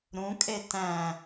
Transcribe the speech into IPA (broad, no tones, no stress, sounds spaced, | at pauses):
ɾ ũ kʼ e t æ̃